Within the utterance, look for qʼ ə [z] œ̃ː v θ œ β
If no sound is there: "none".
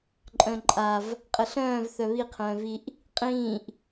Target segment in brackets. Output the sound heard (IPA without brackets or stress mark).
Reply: ɬ